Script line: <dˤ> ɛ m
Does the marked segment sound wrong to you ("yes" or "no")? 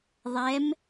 yes